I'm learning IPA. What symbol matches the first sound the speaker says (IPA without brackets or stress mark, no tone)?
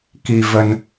k